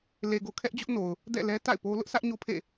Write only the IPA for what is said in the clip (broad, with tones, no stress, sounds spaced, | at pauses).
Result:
l e˨ ɡ o˨ kʰ ɛ˦ ʔ d͡ʑ ʊ˦ ʔ n o˨ ʊ̯ | d ɛ̰˦˨ l ɛ˦ t a̰˦˨ ɪ̯ p o˦ l ʊ˦ ʔ sʰ ä˦ ʔ ɲ o˦ pʰ ḛ˦˨